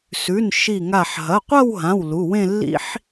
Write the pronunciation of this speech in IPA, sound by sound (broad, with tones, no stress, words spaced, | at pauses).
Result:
sʉ˩˧˩n ʃi˧˩ŋa˧˩ħ ɦɐ˩˧˩qʷɐ˥˧wɦã˩˧˩w lu˩˧˩wẽ˥˧lːḭ˥ħ